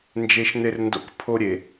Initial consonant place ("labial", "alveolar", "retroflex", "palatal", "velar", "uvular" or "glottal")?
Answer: alveolar